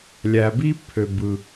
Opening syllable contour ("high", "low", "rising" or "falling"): low